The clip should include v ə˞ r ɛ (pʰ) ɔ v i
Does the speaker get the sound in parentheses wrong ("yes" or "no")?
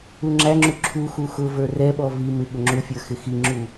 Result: yes